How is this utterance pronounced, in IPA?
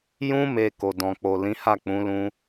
jũ˧me˨ ko˨dɔ̃˨k͡po˨ lĩ˨˦ha˦˨k͡pũ˨˦lũ˧

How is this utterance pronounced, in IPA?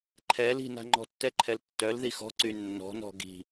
ǃʰɛl i̤na̤ ŋ͡ǃɔ̤tːɛǃʰɛltːœl ðixɔ̤ ǀynːɔ̤nɔ̤ ɡi̤

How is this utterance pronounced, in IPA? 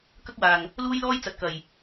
kɐ˥k̚waː˨˩ŋ | luː˥jlɔː˥j t͡sɐ˨t̚kɐ˨˩j

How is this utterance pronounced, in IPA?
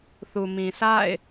θu˨mĩ˨ sʰa̰˦˨ɪ̯

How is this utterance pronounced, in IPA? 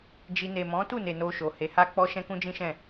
d͡ʒi˧ ne˨mɔ̃˨˦tu˦˨ne˨ no˧ʃo˨ he˨˦ha˦k͡pɔ˦ ʃɛ̃˦kũ˦ d͡ʒĩ˦ʃɛ̃˦˨

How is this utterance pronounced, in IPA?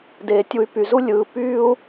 deː˩tʲu˨y̯py˩zu˦ lʲɯː˨ pyː˥u̯

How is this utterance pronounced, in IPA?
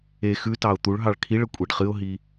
e xʉtɑʊ̯ t̪uɭɦɑɭ kʰiɭə kʷʼiɖχɨʊ̯ɦi

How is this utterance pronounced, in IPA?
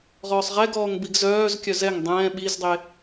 ʁɔːsˤʁɛɡɔːŋ biɡzœːzkʲœ zɛŋ dˤɛ̃ː ɓizdˤe

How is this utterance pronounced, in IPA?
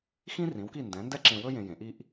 xĩ˥rĩ˩˥wki˥˩ndɛ̃˩˥ ndɛ˥ǁẽ˧wɵ˥ jẽ˧jẽ˩˥ʔi˥ʔ

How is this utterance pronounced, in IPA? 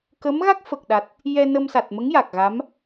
kə˧˥mɣa˦˥k̚fə˨˩k̚ɗa˨˩t̚ | jɛ˧nə˧msa˨˩t̚mə˧˥ŋ ja˨˩k̚ɣa˧˥m

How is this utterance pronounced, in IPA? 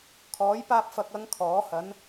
kʰɔː˨˥jpaː˧p̚fɐ˨k̚ɐ˨˧ŋ kʰɔː˨˥ hɐ˨˥n

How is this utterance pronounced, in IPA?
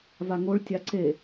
vaŋoɭ tʲaǀe

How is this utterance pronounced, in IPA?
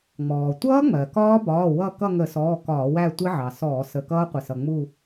ŋ͡mɔː˩tʷʌː˦˥ŋ͡mɜ˩ kɒː˦˥bɒː˩˧˩ wʌ˥˧ kʌ˥˧ŋə˧˩˧sɔː˩˧˩ kɒː˧˩˧wæ˥˧ tʷɪ˦˥ʕɑ˩sɔː˧˩˧ sə˩˧˩kʌː˦˥qʷɪ˩sʌ˩ ŋ͡mu˥˧

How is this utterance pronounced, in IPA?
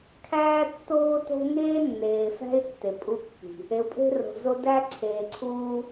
kʰæː˦tːoː˦to̤˦ ŋeː˦nːeː˨fæ̤˦y̯ tːe˨ pʼu˦kːi̤˨ | e˨u̯pʼe̤˦ro̤˨zo˦ dæ˦ ǀʰeː˨ǀʰuː˦

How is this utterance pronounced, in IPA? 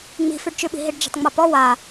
ŋ͡mi̤fyɖt͡ʃʉɓi̤ ɦiɖd͡ʒi̤tˤŋ͡mapɔ wa

